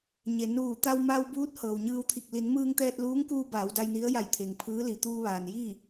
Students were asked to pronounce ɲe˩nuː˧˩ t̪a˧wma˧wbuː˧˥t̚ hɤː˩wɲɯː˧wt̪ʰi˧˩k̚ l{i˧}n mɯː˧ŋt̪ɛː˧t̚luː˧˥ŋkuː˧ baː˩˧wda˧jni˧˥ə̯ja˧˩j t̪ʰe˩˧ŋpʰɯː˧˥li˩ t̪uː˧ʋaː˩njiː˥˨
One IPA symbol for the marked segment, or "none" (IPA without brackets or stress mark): i˩˧